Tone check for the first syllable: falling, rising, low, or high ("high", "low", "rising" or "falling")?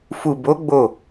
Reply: low